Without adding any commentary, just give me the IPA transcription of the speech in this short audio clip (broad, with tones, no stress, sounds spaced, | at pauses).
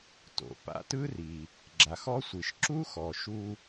t o̰˩ p a̰˧ t ɯ˥ r i˩ | ɡ͡ǁ a˩ x ɔ˥ sʷ i˩ ʃ ǁ u˥ x ɔ˩ ʃ u˧